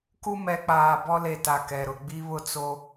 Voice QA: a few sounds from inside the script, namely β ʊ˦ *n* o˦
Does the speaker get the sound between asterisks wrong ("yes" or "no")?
yes